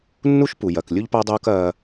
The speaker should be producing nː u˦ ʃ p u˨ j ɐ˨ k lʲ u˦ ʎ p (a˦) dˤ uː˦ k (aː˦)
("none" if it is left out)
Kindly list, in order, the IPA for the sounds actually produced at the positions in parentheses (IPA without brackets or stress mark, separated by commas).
a˦, ɐː˦